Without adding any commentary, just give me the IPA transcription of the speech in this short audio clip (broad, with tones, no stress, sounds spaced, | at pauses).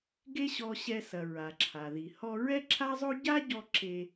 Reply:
ɡ e˥ ɕ ɔ˧ ɕ ɛ˧ s ɐ˩ ɹ a˩ ǁʰ a˩ ð i˩ h ɔ˧ ɹ ɛ˥ ǁʰ a˥ zˤ o˥ ɟ a˥ ɟ ɔ˧ ǁ e˧